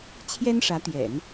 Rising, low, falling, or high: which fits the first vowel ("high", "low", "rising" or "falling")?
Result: high